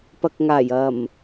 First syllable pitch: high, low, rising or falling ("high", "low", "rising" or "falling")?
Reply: low